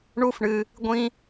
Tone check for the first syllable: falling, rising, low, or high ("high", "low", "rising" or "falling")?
high